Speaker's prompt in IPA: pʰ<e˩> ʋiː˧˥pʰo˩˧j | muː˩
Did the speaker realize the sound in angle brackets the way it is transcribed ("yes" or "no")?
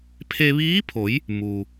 no